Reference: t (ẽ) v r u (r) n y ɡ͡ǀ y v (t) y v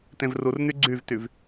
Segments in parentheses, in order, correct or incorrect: correct, correct, correct

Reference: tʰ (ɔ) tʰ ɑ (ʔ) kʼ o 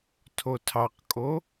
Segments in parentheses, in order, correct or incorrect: incorrect, incorrect

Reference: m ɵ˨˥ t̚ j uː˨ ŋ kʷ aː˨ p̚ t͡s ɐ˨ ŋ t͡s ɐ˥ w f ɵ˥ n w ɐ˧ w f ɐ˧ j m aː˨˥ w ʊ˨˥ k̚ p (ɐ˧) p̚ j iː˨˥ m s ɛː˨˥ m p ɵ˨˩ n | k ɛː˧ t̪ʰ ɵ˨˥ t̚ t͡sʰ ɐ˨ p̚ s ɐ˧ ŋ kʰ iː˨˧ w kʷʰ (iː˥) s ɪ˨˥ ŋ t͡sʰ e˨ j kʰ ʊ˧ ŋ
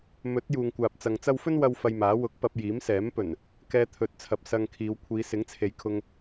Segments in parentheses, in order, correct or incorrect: correct, incorrect

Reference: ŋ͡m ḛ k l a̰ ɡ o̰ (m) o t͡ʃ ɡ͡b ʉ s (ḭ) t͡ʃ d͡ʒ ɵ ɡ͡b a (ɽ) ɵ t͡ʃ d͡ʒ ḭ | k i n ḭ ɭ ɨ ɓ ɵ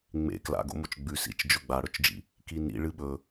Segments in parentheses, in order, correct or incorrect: correct, correct, correct

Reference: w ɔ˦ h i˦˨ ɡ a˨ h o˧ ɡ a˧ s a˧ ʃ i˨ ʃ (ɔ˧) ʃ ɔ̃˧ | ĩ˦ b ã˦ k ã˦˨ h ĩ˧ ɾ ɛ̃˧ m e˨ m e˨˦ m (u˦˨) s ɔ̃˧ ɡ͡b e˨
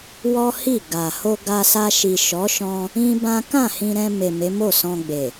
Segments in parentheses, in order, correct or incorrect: incorrect, incorrect

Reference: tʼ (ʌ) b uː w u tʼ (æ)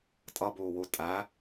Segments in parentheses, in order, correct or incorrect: correct, correct

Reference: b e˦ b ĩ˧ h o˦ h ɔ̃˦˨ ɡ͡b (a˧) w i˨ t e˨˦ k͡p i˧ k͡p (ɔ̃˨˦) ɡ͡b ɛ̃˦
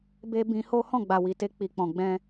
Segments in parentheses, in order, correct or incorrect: incorrect, incorrect

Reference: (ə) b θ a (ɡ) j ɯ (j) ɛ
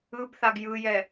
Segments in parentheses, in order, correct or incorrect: incorrect, correct, correct

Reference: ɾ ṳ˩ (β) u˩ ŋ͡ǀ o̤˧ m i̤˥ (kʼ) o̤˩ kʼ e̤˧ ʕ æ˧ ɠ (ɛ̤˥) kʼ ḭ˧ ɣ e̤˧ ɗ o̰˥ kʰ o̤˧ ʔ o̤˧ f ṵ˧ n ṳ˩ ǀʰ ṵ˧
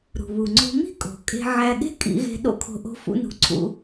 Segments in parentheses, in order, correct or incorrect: correct, correct, incorrect

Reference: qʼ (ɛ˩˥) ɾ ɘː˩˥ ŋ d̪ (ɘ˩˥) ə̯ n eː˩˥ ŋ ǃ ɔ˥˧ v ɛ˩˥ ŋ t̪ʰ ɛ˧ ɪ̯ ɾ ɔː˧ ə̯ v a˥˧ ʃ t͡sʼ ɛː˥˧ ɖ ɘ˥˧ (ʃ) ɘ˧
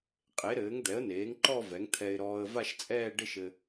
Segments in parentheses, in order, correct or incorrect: incorrect, incorrect, correct

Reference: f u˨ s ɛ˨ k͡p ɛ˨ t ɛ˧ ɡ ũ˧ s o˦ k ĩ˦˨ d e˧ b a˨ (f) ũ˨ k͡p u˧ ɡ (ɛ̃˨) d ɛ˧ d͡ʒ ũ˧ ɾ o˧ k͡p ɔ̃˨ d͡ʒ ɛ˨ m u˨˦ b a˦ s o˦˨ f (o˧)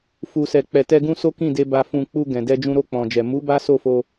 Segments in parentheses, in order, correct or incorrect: correct, correct, correct

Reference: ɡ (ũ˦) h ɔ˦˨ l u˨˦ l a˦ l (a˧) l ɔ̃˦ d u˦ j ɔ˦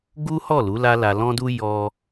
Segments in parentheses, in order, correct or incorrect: incorrect, correct

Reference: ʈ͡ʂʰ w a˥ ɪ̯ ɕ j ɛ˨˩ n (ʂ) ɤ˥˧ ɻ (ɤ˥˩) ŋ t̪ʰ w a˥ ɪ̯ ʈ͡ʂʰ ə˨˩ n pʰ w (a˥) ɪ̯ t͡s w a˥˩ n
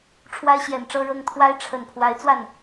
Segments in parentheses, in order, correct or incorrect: incorrect, correct, incorrect

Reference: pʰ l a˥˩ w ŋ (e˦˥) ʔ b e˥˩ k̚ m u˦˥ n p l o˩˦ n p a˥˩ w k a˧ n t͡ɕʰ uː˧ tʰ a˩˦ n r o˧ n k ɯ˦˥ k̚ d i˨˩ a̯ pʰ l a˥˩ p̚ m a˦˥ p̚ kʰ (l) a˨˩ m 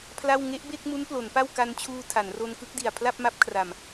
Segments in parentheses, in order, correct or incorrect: correct, incorrect

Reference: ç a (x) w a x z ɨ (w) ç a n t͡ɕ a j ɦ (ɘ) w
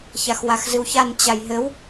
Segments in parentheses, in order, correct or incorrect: correct, correct, correct

